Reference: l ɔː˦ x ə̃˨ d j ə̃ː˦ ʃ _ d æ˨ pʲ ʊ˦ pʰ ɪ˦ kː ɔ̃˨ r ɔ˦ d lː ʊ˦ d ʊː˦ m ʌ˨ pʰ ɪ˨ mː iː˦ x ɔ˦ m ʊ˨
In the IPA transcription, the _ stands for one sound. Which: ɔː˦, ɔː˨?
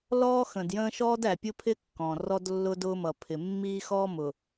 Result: ɔː˦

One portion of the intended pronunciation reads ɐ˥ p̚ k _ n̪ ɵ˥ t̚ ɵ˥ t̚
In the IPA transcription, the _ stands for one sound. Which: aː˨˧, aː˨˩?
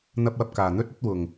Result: aː˨˩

